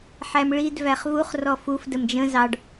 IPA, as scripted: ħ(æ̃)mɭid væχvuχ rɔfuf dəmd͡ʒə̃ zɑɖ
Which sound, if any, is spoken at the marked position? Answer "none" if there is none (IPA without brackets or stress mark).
æ